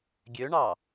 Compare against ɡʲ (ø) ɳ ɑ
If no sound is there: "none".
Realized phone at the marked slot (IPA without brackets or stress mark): ø